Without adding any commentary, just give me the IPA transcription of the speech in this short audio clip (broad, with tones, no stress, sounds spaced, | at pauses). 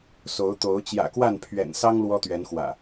s o˨˦ ʊ̯ t̪ o˨˦ ʊ̯ t͡ɕ j ä̰˨˩ k w a˥˨ n pʰ ɥ ɛ̰˨˩ n s ɑ˦ ŋ l w ɔ˦ t̪ ɥ ɛ˨˦ n x w ä̰˨˩